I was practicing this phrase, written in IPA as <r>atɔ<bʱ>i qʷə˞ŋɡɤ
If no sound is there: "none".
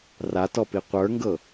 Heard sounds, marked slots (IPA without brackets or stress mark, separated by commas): r, p